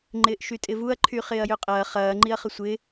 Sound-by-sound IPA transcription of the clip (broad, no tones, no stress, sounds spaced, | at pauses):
ŋ͡ǃ ɪː ʔ ʃ y tʼ ɪ v u ɐ̯ ǃʰ y χ ɪː ɐ̯ j ø qʼ ɐː χ ɐː ŋ͡ǃ i ɐ̯ χ ə sʷ ɪː